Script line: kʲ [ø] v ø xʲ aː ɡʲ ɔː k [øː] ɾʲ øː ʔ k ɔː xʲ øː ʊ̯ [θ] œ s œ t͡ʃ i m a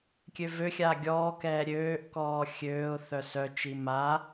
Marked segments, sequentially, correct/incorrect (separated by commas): correct, incorrect, correct